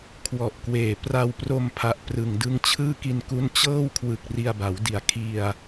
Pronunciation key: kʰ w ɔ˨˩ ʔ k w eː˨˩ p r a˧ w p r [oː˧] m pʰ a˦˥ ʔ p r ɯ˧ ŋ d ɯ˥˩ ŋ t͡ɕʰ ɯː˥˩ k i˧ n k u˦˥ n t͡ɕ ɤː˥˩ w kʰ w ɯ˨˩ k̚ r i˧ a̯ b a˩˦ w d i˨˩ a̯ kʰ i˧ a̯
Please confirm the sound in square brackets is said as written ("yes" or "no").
no